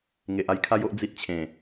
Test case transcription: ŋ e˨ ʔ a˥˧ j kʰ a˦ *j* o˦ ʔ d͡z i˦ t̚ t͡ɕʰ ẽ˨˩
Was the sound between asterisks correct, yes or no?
yes